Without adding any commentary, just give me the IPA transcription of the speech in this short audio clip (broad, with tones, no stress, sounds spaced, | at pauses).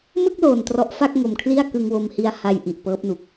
m ɯ˥˩ k̚ l oː˨˩ n t r ɔ˦˥ ʔ f a˥˩ k̚ ŋ o˨˩ m kʰ l i˥˩ a̯ k ɯ˧ ŋ w o˧ m h i˦˥ a̯ h a˧ j ʔ i˨˩ ʔ p ɤː˦˥ p̚ n u˨˩ k̚